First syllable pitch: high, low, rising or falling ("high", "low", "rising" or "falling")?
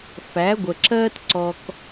rising